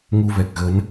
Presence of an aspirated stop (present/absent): absent